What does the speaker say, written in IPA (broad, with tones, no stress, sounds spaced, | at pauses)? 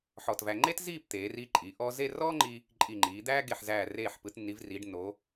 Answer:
ħ ɔ˧˩ t v æ˧ ŋ͡ǃ e˥ t z iː˥˧ p t̪ eː˩˧ r iː˧ ǃʼ iː˩˧ ʔ ɔː˧ z e˥˧ r ɔː˥ ŋ͡ǃ i˧ | ǃʼ i˧˩ ŋ͡ǃ iː˩˧ d̪ æː˥ ɡ e˧˩ ħ z æː˧˩ r eː˧˩ ħ p ɯ˩˧ t nː i˩˧ v r iː˩˧ ɖ nː oː˩˧